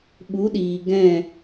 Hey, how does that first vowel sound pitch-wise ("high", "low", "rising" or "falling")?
rising